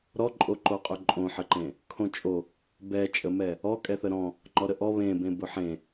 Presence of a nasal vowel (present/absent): present